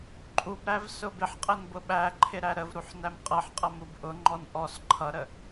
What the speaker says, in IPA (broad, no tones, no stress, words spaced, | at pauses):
ǃʼubɾæv sʊbɪħqʼən bʊɓæǃʰɪ ɾæɾəvɾuħ næmqʼʌħqʼʌ mubʔʊŋ͡ǃɔn ʔɔs ǃʰʌɾə